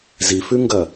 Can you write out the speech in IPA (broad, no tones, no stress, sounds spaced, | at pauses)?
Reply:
z i f ʉ ŋ ɡ ɐ